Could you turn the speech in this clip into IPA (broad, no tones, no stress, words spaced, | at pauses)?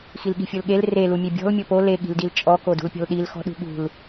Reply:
xilɠi̤fʲolɠel re lumʲebʲɔ̤l mʲopo le ɠi̤ldilt͡ʃʼɔ kodṳlpʲɔ̤lɗil xɔ̤ɗṳɠṳl